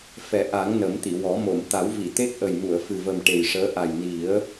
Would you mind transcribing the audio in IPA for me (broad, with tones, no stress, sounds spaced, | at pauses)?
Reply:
f ɛ˨˩˦ ʔ a˨˩˦ ŋ n ə˨˩˦ m t̪ i˨˩˨ w ɔ˨˩˦ m o˨˩˨ m t̪ a˨˩˦ w v i˨˩˨ t̪ e˦˥ k̚ ʔ ə˨˩ j m u˨˩˨ ə̯ f ɨ˨˩ v ə˨˩ m ʈ e˨˩ j ʂ əː˧˥ ʔ a˨˩ j n i˨˩˦ ə̯